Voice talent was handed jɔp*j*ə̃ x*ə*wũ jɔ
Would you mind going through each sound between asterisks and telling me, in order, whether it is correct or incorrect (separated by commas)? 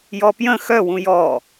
correct, incorrect